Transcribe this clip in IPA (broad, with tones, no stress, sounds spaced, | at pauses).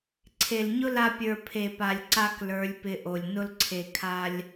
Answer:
ǀʰ e˨ l ɲ ʊ˦ l a˧ pʲ ə˞˨ pʰ e˨ p a˨ lʲ ǀ a˦ k l ə˞˨˦ lʲ p ɪ˧ ʔ o˨ lʲ n ʊ˧ l ǀʰ e˨ kʰ a˧ lʲ